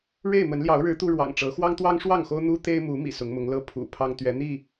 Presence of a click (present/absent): absent